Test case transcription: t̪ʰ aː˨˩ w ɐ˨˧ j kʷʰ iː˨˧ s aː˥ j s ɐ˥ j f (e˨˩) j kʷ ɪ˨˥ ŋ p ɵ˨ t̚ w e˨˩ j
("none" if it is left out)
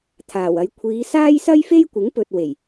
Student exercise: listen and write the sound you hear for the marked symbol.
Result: e˥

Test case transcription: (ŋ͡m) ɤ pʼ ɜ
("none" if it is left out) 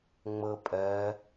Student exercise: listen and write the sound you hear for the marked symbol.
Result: ŋ͡m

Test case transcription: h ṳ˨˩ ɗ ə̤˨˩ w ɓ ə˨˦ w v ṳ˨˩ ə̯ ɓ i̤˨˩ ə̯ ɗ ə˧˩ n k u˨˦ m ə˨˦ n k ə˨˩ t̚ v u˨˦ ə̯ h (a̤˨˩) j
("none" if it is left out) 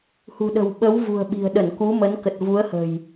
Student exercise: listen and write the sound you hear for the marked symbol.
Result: ə̤˨˩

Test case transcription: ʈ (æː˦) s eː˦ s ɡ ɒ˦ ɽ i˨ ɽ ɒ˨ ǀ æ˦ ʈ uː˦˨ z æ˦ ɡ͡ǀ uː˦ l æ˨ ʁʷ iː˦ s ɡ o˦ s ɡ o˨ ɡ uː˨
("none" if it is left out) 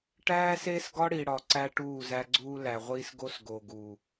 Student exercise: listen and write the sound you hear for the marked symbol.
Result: æː˦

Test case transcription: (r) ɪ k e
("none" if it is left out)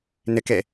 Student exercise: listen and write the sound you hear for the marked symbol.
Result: n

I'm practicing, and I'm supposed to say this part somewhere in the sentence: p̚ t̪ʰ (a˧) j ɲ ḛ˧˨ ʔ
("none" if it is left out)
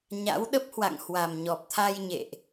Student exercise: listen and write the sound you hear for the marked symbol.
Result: a˧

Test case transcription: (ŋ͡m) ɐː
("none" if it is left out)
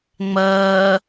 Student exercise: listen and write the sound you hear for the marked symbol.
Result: ŋ͡m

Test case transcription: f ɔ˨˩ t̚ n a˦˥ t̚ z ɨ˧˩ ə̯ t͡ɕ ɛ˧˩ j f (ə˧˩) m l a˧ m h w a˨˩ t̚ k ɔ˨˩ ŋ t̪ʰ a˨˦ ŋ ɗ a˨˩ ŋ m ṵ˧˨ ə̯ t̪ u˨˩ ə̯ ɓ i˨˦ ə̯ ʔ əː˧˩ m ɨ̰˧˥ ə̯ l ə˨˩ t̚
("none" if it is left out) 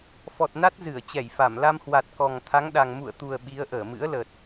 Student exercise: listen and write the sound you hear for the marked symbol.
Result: a˧˩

